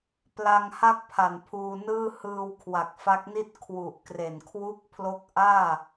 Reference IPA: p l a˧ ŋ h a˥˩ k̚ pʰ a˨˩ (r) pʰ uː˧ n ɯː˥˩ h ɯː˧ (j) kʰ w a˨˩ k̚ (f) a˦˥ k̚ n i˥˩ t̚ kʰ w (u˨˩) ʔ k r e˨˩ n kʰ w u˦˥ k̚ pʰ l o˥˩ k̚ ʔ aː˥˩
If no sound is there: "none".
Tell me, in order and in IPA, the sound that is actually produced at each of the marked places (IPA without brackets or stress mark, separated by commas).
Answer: n, w, f, u˨˩